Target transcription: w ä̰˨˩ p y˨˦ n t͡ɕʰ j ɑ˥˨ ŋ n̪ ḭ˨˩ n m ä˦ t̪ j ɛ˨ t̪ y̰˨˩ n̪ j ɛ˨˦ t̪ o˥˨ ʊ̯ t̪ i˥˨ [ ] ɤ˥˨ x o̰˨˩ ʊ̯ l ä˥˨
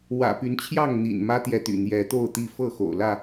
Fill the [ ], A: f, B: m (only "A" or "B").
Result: A